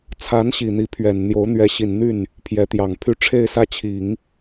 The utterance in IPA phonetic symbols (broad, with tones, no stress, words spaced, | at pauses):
t͡sʰa˧˥nɕi˨˩ n̪i˧˥pʰɥɛ˨˩n n̪jo˧˥ʊ̯n̪ɥɛ˧˥ɕi˨˩n n̪y˥˩n | pʰjɛ˧˥t̪jɑ˨˩ŋpʰy˥˧ ʈ͡ʂʰe˥˧ɪ̯sä˥˩t͡ɕʰi˨˩˦ŋ